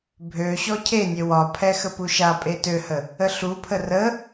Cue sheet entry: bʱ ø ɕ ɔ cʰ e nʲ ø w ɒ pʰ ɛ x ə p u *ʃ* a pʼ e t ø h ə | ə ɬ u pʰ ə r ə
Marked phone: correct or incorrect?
correct